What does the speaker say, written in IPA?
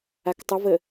a k tˤ ə v ə

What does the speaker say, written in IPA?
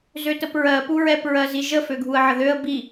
z ø t ə p ɹ ɜ p u ɹ ɛ p ɹ ɜ z i ʒ ə f ø ɡʱ u ə̯ ʕ ə ð ø ə̯ b i

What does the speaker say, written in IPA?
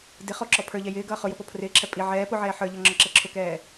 d ɪ χ ɔ ǁ ɔ pʰ ə˞ ʎ ɛ j ɪː ɡ ʌː χ ʊ j ʊ p ɔ pʰ r ɪː ǁʰ ɛ pʼ i ʕ ɛː p ʊ ʕ ɛː ħ ə˞ ʎ ʌ ŋ͡ǁ ɔ ǁ ɛ ǁʰ ʊ k ɛː

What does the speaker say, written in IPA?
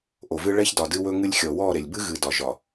ʔ o˨ v ɨ˦ ɭ ɛ˦ ç d ɒ˨ d ɨ˦ w ɵ˦ ŋ ɨ˦ lʲ xʲ ɔ˨ w ɔ˦˨ ɾ e˨ lʲ b ɨ˦ ɣ ɨ˨ d ɒ˨ ʒ ɒ˨

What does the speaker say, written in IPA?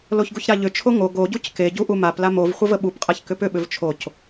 l o ç ɡ u ç ɾ a ʎ ʏ t͡ʃʰ o ŋ o ɡ o ɟ u c k e ɟ u ʔ u m a p l a m o v χʷ ə v ə ɓ u p qʼ a ç k ʏ p ʏ ɓ ʏ v t͡ʃʰ o c

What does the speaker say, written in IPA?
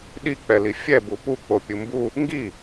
ɗ i k͡p ɛ l i fʲ ɛ b u p u k͡p o pʲ ɯ m b u | ŋ ɡ i

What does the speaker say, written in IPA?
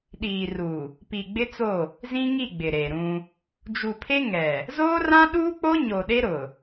ɗ iː˨ r u˨ | p i˨ ɡ͡b ɪ˦ t͡s o˦˨ | z ĩ˦ ŋ i˦˨ ɡ͡b ɪ˨ ɾ e˨ ɾ ũ˦ | d͡ʒ u˨ pʰ e˦ ŋ ɛ˨ | z oː˦ r ã˦ ɗ uː˦ k͡p o˦ ɲ o˨ ɗ e˦ ɾ ʊ˨

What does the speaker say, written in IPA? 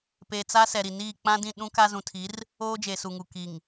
p eː˨ t͡s a˦ s ɛ˨ ɾ i˨ n iː˦˨ k͡p ã˦ d ĩ˦˨ ɗ ũ˦ k a˦ z ũ˨ tʰ i˨˦ r | oː˦ d͡ʒ e˨ s u˨ ŋ u˨ k i˨ ŋ

